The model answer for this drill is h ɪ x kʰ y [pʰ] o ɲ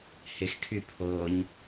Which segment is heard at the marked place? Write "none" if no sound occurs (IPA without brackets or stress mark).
pʰ